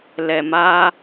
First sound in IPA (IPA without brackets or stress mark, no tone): l